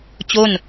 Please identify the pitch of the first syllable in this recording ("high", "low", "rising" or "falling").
falling